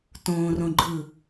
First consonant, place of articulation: alveolar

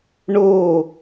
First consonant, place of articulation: retroflex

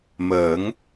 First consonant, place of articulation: labial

